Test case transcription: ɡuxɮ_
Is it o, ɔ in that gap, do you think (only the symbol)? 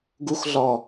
ɔ